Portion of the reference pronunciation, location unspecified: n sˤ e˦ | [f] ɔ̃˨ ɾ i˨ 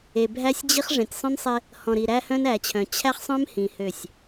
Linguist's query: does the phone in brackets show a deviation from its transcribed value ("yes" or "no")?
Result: yes